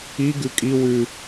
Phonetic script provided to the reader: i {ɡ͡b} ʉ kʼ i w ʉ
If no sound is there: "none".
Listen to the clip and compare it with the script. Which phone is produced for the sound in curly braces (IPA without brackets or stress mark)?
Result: ɡ